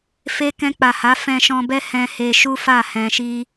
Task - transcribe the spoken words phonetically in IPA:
fe˦ kɛ̃˧k͡pa˨ha˨˦ fɛ̃˧ʃɔ̃˧bɛ˦ hɛ̃˧ he˧ ʃu˦fa˦˨ hɛ̃˧ʃi˦

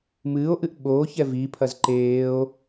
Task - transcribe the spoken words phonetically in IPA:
mɨːo̯ʔɨʔ ɓoːç ɛvipʰɐz ǃeːo̯

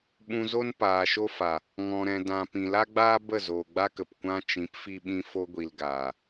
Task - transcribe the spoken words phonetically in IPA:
ɓũ˧zo˦n paː˨ʃo˦fa˨ | ŋɔ̃˨ ɾɛ̃˨dã˨ pĩ˨la˦ɡ͡baː˦ bə˦˨zoː˨ɡ͡ba˦kə˨p kʷã˦ t͡ʃĩ˨˦pfi˧ɓĩ˧ fo˧ɡʷi˨l ɡaː˨

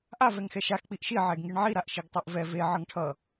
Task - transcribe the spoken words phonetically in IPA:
ʔa vɛŋxɛʃax k͡piʔʃi ʕɛɡŋiɳʕi ɾaʔʃiɡtˤoʔvɛ ve ʕʌŋʈʰʌ

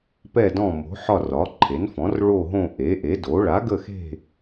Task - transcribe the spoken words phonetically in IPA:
pɛ˦˨dɔ̃˦˨ mo̤˩˥ħɒ˦˨ rɒ˩˥ǃʰe˩˥nfɔ̃˩˥r ɭo˦˨ɦõ˦˨ ʔe˩˥ʔe˩˥do˩˥ ɭa˩˥ɡə˦˨xe̤˦˨

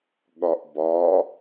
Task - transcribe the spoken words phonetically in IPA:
ɠɒʔbɒ

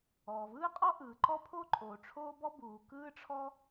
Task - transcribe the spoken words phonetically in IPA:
ɔː˩vɯː˥qʼɔ˥ ʔɯː˩ǃɔ˥pʰo˥ǃʼoː˩ ʈ͡ʂʰoː˥bɔ˥ buː˩ kɯː˥ʈ͡ʂʰɔ˥

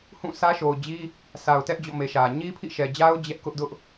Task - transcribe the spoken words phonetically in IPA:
hũ˦˨sä˦ʃo˨ʊ̯d͡ʑi˦ | sʰa˨ʊ̯tɛ˦ʔd͡ʑɔ̰˦˨ me˨ʃä˨ ɲi˦pʰḭ˦˨ʃɛ˨d͡ʑa˦ʊ̯ d͡ʑɛ˦ʔ kʊ˦ʔdʊ˦ʔ

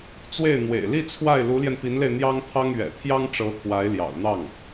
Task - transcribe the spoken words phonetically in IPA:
t͡swe˥˩ɪ̯ n̪wḛ˨˩ɪ̯ li˥˧ t͡sʰwa˥˩ɪ̯ lu˧˥ljɛ˧npi˧˥nle˧ɪ̯ n̪jɑ˥ŋt̪ʰɑ˥ŋ ɥɛ̰˨˩t̪ʰjɑ˥ŋʈ͡ʂɤ˧˥ t̪ʰwa˧˥ɪ̯ ljɑ̰˨˩ʊ̯n̪ɑ˥˩ŋ

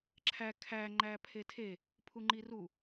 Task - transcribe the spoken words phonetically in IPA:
ǁʰæ kʰæ ŋ͡ǃæpʰetʰe | pʰuŋ͡ǃiru

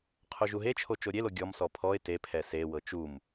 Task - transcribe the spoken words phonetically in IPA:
qʰoʒuɦet͡ʃʰo t͡ʃoɾʲelo ɡʲɔmsɔ pʰɔɪ̯ tepʰɛ sewɤ t͡ʃum

